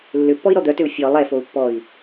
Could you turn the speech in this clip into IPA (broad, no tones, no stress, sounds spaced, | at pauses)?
lː ʏ pː ɔ i̯ ɾ ɔ d̪ œ t ʏ u̯ fʲ ɔ lˠ ɛ f o u̯ pː ɔ i̯